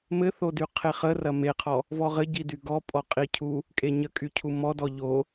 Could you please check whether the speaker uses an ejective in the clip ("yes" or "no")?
yes